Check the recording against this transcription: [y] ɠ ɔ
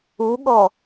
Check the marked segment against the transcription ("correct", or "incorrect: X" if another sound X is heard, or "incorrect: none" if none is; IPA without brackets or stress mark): incorrect: u